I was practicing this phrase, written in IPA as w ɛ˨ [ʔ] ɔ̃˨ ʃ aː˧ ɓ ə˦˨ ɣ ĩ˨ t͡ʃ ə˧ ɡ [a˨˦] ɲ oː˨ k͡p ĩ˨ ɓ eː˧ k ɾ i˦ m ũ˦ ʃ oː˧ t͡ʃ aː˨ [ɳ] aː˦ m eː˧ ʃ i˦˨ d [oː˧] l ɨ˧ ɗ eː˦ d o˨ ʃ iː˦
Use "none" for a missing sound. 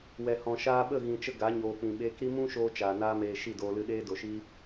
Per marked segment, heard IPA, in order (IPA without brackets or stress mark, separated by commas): h, a˨˦, n, oː˧